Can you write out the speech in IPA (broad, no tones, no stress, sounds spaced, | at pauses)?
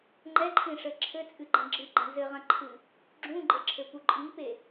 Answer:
ŋ͡ǃ ɛ ǃʰ ĩ ʂ ɘ ǁʰ ɘ t͡sʼ ɨ ɡ͡ǃ ɐ̃ ɡ͡ǁ ɨ ɡ͡ǃ ɛ̃ z ɘ ʁ ɐ̃ ǃʰ ɨ | ɡ͡ǁ ũ ɡ͡ǃ ɘ ǁʰ ɘ p u ǃʼ i p e